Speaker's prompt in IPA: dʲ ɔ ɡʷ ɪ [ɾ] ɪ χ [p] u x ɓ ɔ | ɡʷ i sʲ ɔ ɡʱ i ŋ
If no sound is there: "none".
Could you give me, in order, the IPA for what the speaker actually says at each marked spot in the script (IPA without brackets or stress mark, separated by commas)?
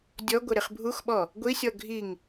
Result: ɾ, bʱ